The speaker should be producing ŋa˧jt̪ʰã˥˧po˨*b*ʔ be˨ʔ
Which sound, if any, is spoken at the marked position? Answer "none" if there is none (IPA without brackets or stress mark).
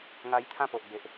none